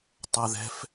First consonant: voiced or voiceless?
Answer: voiceless